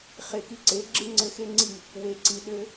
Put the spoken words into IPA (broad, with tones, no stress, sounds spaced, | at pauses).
χ e˨ k i˧ ǀ e˨˦ ɡ͡ǁ ɨ˦ ŋ͡ǀ ɘ˧ x e˦ ŋ͡ǀ i˦˨ | w e˨ ǀ i˨ ɗ ɘ˧